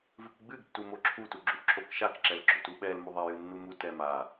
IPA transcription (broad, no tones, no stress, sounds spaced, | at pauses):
v ɨ k ɡ͡b ɨ ɡ tː u m o ǁʰ u t u ɡ͡ǁ u ʔ ǁ o k ʃ a k ǁ ɛ l ɡ͡ǁ o t u ɓ ɛ l m u ðˤ ɛ j ɨ nː u m u t ɛ m a